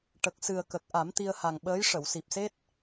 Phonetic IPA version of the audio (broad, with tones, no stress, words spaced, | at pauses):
ʈə˨˩k̚sɨ˨˩ə̯kə˨˩k̚ ʔa˨˩˦mt̪i˧ə̯ha˨˩ŋɓəː˧˥j ʂə˨˩˨wsi˨˩p̚se˦˥t̚